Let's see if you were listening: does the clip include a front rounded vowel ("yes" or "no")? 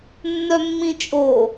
yes